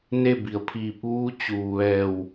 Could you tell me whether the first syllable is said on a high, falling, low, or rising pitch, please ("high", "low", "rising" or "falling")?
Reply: falling